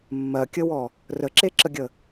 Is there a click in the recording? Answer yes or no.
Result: yes